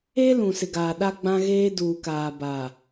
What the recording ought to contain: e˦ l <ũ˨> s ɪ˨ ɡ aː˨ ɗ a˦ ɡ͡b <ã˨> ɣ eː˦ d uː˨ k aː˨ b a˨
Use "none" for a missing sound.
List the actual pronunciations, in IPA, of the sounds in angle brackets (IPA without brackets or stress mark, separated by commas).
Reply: ũ˨, ã˦